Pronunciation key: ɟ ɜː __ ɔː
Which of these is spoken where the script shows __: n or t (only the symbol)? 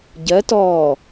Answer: t